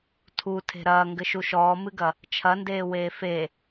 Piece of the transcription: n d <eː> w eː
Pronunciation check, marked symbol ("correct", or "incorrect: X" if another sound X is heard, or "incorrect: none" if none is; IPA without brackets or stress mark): correct